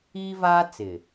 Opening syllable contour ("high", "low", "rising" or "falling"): high